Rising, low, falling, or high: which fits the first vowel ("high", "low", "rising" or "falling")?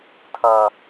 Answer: high